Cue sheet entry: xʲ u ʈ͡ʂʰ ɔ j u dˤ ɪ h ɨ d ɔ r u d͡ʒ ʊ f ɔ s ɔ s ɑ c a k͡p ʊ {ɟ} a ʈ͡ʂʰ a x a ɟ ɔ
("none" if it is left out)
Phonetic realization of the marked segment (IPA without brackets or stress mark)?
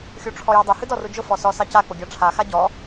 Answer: ɡʲ